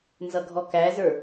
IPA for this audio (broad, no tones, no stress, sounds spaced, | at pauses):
n z ʌ ɡʱ ɔ k æ z ə˞